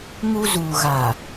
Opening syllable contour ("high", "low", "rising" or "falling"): high